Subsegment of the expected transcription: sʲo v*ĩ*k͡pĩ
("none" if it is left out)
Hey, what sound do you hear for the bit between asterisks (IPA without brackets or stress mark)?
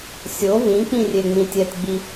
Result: ĩ